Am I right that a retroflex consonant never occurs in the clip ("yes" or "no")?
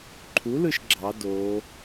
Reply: yes